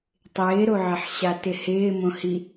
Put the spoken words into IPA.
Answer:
tˤ ɪː ɾ o ʕ ɪ ħ ɕ a t ɪ h ɪː m õ h i

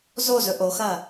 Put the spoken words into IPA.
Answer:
z o z ɵ ʔ o x ɐ

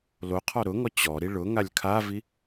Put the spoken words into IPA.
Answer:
l o qʰ ɔ ɾ ʊ ŋ ɔ t͡ɕ ɔ ɾ i ɭ ʊ ŋ a lʲ kʰ a v i

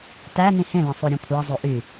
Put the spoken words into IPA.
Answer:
t æ n ĩ h ẽ l ẽ sˤ o ɾʲ ũ kʷʰ ɑ zˤ o ʔ y

